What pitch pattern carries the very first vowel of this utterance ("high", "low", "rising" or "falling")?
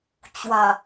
low